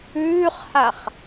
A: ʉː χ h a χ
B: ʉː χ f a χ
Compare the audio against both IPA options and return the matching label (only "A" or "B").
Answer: A